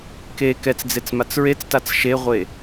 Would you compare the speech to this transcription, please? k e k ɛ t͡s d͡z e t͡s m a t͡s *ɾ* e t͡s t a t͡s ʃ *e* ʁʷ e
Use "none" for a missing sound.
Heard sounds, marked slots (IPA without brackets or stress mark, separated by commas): ɹ, e